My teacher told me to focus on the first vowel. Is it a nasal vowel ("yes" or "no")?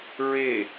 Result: no